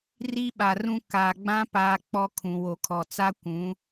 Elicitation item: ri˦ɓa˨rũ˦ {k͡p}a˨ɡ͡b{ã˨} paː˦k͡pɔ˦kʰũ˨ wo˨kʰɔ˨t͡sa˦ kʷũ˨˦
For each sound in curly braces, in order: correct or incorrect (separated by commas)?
incorrect, incorrect